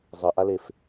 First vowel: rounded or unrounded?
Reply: unrounded